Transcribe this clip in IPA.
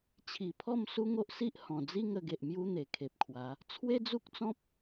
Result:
t͡ɕʰi˨˩pʰɔ˥˧m su˦ŋo˦ʔsi˦ʔ hɔ̃˨˩d͡zi˦ŋə˧ɡe˨ʔ mju˦n̪e˨˩kʰe˨p̚kʰwa˨˦ | t͡sʰwe˦d͡zu˦k̚t͡sɔ̃˦p̚

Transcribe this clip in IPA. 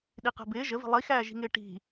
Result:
ɗiqɛ̤bɪː ʒəvi̤ lˠixæːʒi̤ŋɪː ʈi̤

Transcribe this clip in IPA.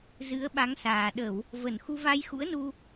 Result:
zɨ˨˦ə̯ɓa˨˦ŋsaː˨˩ ɗə˧˩˨w | və˧˩nxu˧ va˧jxṵ˧˥ə̯nu˧

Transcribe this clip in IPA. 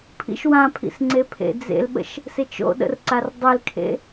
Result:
pʰḭʃwãpʰḭsŋ͡ǀe pʰḛd͡zḛlɓə̰ʃ | set͡ʃo̰ɗə̰rǀar dˤelkʰḛ

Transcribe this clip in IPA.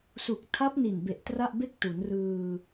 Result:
su˨˩k̚tʰa˦˥p̚ ni˨˩nbe˨˩ʔ tra˥˩ʔbe˥˩k̚ tu˩˦nrɯː˧

